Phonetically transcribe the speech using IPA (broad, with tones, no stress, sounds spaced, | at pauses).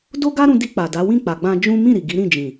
d o˦ ɡ a˦ ɾ ũ˧ d i˧ k͡p a˨ d a˨˦ w ĩ˦˨ k͡p a˨ ɡ͡b ã˧ d͡ʒ ũ˦ m ĩ˦˨ ɾ i˨ ɡ i˨˦ ɾ ĩ˦˨ d͡ʒ ĩ˨